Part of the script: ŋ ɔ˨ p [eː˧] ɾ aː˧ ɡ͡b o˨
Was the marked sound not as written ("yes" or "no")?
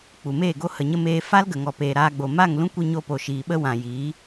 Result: yes